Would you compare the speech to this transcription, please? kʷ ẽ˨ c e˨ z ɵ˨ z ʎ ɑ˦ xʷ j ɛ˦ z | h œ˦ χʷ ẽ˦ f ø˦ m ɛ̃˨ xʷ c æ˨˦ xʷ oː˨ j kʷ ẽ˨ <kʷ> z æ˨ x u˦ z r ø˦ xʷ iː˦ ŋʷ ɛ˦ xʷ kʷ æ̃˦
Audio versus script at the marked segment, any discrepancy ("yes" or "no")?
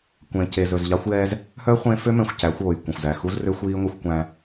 yes